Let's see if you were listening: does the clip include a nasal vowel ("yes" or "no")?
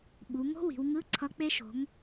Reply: no